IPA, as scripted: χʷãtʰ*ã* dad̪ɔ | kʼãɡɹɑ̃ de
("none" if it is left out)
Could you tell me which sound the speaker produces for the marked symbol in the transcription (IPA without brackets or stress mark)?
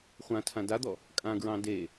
ã